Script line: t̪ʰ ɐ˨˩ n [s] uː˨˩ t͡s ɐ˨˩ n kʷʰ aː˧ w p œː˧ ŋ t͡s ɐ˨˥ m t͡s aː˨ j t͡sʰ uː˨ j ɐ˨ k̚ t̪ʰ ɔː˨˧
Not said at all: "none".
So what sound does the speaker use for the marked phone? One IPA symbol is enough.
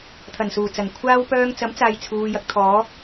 s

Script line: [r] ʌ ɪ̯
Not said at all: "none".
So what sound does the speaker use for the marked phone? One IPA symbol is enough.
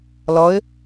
l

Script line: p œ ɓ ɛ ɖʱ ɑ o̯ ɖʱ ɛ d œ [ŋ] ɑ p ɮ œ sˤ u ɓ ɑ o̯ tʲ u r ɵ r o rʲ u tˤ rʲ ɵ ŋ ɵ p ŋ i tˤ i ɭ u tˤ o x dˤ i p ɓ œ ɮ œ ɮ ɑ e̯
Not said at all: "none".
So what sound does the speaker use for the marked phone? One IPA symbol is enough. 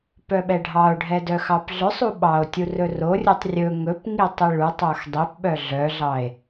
x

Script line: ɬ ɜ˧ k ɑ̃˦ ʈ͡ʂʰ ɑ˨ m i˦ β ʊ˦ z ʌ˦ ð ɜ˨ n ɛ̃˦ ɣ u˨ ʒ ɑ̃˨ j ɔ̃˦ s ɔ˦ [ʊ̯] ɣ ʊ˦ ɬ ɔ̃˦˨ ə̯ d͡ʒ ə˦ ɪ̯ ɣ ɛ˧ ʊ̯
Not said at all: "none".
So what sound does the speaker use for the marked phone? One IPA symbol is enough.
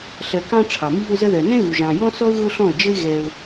ʊ̯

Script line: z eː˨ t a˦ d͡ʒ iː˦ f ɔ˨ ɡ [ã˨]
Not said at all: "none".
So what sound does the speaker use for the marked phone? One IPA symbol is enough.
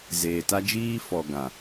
ã˨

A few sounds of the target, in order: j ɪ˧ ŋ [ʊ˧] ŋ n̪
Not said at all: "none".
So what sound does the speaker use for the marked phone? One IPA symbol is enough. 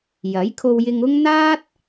ʊ˥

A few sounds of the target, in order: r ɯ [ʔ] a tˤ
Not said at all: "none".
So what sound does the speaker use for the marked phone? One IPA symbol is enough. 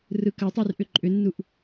k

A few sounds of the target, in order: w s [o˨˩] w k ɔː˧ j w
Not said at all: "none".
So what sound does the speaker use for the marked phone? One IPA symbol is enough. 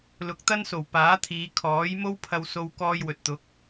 o˧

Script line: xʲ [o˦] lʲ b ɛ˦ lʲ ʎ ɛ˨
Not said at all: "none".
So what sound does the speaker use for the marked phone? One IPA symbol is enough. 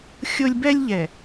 o˦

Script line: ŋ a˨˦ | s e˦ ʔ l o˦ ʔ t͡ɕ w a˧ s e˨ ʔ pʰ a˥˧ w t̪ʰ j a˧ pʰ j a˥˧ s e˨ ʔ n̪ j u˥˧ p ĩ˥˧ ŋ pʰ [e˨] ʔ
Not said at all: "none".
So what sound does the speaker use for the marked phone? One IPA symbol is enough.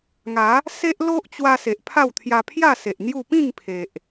e˨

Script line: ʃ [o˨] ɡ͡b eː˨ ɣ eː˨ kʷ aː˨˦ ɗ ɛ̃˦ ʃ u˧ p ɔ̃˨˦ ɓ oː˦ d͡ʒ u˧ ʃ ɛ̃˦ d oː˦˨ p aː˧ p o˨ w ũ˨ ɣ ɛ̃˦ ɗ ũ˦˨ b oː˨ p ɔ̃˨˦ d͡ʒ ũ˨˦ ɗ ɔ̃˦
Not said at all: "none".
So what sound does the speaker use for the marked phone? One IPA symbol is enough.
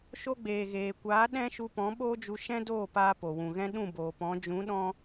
o˧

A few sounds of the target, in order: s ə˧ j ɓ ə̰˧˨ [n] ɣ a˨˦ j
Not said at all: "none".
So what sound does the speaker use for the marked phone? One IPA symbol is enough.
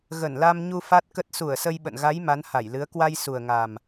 n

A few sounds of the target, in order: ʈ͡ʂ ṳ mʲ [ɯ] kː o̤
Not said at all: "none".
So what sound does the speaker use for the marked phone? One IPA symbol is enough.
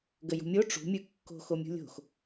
ɯ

